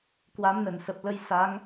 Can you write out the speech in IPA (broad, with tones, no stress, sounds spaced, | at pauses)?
k w a˨˦ m n ə˧˩ n s ə˨˩ p̚ l ə˧ j s a˨˦ ŋ